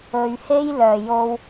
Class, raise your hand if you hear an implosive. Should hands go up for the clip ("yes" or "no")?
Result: no